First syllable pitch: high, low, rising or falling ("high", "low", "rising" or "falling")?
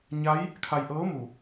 rising